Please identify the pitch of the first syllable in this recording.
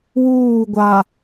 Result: falling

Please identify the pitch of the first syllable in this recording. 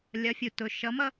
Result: rising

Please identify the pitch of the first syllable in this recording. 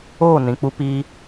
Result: falling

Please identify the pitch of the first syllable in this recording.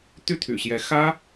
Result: falling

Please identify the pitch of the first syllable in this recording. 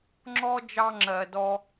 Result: high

